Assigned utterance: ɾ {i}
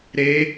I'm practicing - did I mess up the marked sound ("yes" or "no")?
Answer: yes